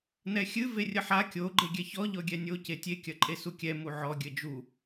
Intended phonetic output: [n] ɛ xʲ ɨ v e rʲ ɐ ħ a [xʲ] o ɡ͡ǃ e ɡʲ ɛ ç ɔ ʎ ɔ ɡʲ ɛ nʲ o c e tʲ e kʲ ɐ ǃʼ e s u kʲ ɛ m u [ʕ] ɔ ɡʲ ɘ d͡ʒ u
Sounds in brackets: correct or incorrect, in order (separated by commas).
correct, incorrect, correct